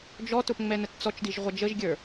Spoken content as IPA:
d͡ʒ ɔ t ʊ p ŋ͡m ɛ n ə t t͡s ɔ t͡ʃ d i ʒ ʁʷ ʌ d͡ʒ ə ʒ ɡʲ ə˞

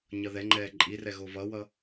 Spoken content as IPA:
ɲ ʌ ð ɛ ŋ͡ǃ ɛː ǃʼ i r ɛ ɣ o v ʌ w ʌ

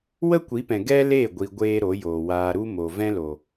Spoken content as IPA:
w ə˦ kʷ i˨˦ p ɛ̃˨ ɡ ɛ˦ l e˦˨ ɡʷ i˧ ɡʷ eː˦ ɾ o˨˦ j oː˨ w aː˧ ɾ u˦ m o˨ v ɛ̃˦ l o˨

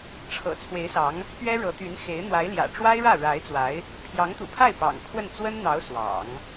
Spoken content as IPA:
ʈ͡ʂʰ ɤ̰˨˩ t͡sʰ w e˧˥ ɪ̯ s ɑ˧˥ ŋ | p ɥ ɛ˥ ɻ ɤ˧˥ t̪ y˧˥ n x e˧˥ ɪ̯ n̪ w a˧˥ ɪ̯ l j ä̰˨˩ ʈ͡ʂ w a˥ ɪ̯ ɻ ä˥˩ ɻ a˧˥ ɪ̯ t͡s w a˧˥ ɪ̯ | pʰ j ɑ˧˥ ŋ t̪ ṵ˨˩ pʰ a˥˩ ɪ̯ p ɑ̰˨˩ ŋ kʰ w ə˥˩ n t͡s w ə˥ n n̪ ɑ˧˥ ʊ̯ s w ɑ̰˨˩˦ ŋ

